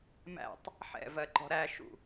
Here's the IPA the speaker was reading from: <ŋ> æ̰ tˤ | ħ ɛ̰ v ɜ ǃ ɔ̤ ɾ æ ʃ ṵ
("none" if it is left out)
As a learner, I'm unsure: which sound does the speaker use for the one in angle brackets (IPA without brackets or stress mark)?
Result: m